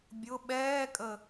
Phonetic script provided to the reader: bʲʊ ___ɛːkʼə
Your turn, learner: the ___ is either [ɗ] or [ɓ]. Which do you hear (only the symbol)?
ɓ